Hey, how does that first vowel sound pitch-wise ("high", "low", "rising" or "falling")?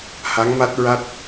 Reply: rising